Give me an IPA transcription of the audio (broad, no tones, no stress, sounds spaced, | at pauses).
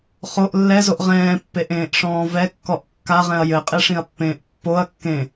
χ o ʔ lː ɛ z o ʔ ʁ ɛ̃ː pː e ʔ ẽː ʔ ʂ ɔ̃ː v ɛ kː ɔ ʔ kː a ʁ ɛ̃ ɐ̯ j ɘ qʼ e ʂ ĩ ɐ̯ pː ẽː ʔ pː o ɐ̯ kː ẽ